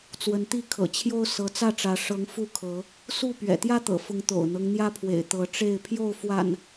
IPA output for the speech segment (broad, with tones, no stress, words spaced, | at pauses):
t͡swə˨˦nt̪i˥˨kʰɤ̰˨˩t͡ɕʰjo˦ʊ̯ sɤ˨˦t͡sä˥˨ʈ͡ʂä˨˦ ʂɤ˨˦ŋ fu˥˨kʰɤ˨˦ | su˥˨ pɥɛ̰˨˩t̪jä˦t̪ɤ̰˨˩fʊ˨˦ŋ t̪o̰˨˩ʊ̯n̪ɤ˦ŋn̪jä˦pʰwḛ˨˩ɪ̯ t̪ɤ˨˦ʈ͡ʂe˥˨ɪ̯ pʰjo˥˨ʊ̯fwa̰˨˩n